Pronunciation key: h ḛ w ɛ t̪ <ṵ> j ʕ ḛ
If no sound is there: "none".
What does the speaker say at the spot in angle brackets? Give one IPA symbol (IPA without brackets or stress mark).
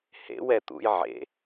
ṵ